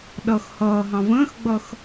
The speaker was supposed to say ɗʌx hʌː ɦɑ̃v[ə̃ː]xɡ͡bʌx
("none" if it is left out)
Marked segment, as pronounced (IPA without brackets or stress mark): ə̃ː